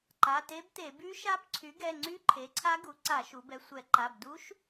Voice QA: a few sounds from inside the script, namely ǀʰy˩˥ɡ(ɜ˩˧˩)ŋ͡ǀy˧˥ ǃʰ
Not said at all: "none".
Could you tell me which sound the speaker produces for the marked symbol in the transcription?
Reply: ɛ˩˧˩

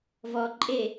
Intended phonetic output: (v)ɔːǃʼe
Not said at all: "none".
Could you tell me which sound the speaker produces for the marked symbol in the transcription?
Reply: v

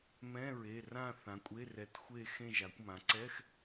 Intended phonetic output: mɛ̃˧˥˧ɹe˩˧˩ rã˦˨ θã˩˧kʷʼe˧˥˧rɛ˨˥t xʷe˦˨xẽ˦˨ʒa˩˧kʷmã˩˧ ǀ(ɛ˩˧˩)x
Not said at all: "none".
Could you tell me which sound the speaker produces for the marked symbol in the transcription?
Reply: ɛ˧˥˧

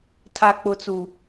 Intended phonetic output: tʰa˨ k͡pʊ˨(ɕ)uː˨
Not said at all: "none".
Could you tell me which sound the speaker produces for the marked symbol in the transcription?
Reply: t͡s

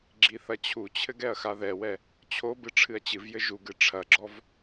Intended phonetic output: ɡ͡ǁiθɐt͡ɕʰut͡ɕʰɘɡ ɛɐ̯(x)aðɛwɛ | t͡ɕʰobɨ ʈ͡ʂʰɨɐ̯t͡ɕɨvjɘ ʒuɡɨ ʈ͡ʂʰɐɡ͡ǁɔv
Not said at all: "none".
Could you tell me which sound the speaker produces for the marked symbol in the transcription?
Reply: x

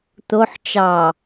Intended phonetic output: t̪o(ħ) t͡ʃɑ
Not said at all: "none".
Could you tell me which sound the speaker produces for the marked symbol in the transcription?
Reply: ħ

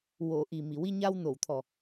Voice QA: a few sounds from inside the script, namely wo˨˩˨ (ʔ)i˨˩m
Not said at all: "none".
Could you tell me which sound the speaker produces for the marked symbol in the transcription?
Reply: ʔ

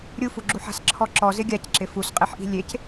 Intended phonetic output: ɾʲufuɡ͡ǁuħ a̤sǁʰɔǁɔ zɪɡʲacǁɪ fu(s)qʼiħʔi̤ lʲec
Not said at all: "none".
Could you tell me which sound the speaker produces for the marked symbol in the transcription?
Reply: s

